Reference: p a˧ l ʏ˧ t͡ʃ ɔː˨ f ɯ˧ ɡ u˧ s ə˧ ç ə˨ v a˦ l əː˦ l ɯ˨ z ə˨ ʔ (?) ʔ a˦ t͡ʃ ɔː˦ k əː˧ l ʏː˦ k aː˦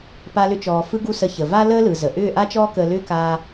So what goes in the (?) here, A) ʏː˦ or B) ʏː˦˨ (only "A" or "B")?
B